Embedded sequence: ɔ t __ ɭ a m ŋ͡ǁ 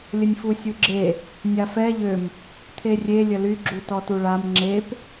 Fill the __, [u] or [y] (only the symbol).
u